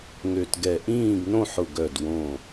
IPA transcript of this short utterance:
ŋ ø˧˩ t ɡ ɛ˧˩ ʔ ĩː˥˨ ɡ n õ˥˨ ħ ʊ˧˩ ɡ œ˧˩ d w õ˧˩

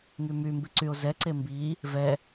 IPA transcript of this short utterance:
ŋ y m y m b i ǀ y o̯ z ɛ ǀ e m b i | v ɛ

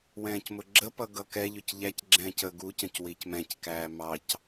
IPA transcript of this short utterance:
w ɛ̃ː c m ʊ ɡ͡ǁ ə p ʌ ɡ ʌ k ɛ ʎ ʊ c ʎ æ c ɡ͡ǁ ɛ̃ː c ə ɡ u c ə̃ c w i c m ɛ̃ c k æː m ɑ c

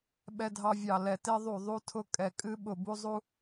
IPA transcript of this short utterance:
ɓ ɛ˧ dʱ ɑ˧ vʲ ɑ˨˩ l ɛ˨˩ t e˧ ðˤ u˨˩ ðˤ u˧ tʰ ʊ˧ kʼ ɛ˨˩ kʼ ɨ˧ ɓ ʊ˨˩ b u˧ zˤ u˧

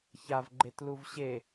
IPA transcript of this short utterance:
ç a v ɡ͡ǃ e t l u v ɕ e

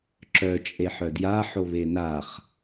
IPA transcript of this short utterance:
ǁ œ t͡ʃʼ e ħ œ d j a ħ o β e n a χ

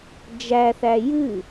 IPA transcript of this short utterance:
d͡ʒ æ θ æ j ɨ

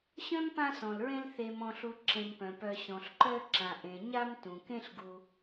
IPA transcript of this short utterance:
ɕ œ̃˥ m p ã˦ s ɔ̃˩ l ɹ ẽ˦ l θ e˨ m ɔ̃˨ ɬ u˨ ǁ ẽ˨ m p œ̃˩ p œ˨ ɕ ɔ̃˩ ɬ ǃ œ˦ ǁ ã˩ ʔ ẽ˩ ɲ a˦ m t ũ˩ k ẽ˦ ɬ ɡ u˨

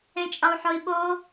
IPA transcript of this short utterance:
ẽ t͡ʃʼ ɒ u̯ ħ o i̯ ɓ o

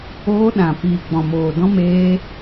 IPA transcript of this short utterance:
oː˧ ɗ ã˨ p iː˨ ɡ͡b ɔ̃˨ m oː˨ d ɔ̃˧ m eː˧

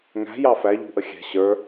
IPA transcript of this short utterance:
ŋ æ̤ j ɑ f æ ʎ ṳ ʔ ə xʲ ɛ̤ ɕ ə˞

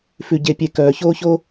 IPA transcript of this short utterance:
f ʉ˦ ɟ e˦ pʲ e˦ k œː˨ ç oː˦ ç o˦

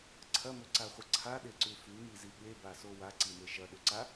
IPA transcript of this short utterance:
ǀʰ ɐ m ɵ ǀ a χʷ ɐ ǀʰ a ɗ e ǀ ʉ f ʉ m i z i ɠ e b a s o w a ǀ i m e ʃ ɐ ɗ ɵ ǀ a

